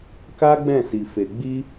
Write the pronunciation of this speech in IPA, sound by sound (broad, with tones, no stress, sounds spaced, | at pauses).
k a˦ ɡ͡b ɛ̃˦˨ s i˨ f e˨ ɡ͡b i˧